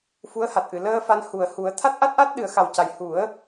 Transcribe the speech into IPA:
fu˧˥ə̯ha˨˩t̚ʔɨ˨˩˨ ləː˧ fa˧n hu˨˩ə̯hu˨˩˦ə̯ t̪ʰa˦˥t̚ʔa˦˥t̚ʔa˦˥t̚ ɗɨ˨˩˦ə̯xa˨˩wca˨˩j hu˨˩˦ə̯

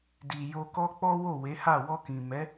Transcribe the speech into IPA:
di˨jo˧kɔ˦ k͡pɔ˦wo˦˨we˨˦ha˦˨ wɔ˧kĩ˨mɛ˨˦

